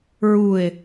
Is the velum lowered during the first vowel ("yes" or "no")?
no